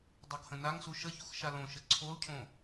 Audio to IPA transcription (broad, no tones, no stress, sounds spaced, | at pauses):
dˤ ɤ ɡ h ə̃ n a ŋ s u ʃ ə ç u x ʃ a l õ ʃ ə ǀʰ o l cʰ õ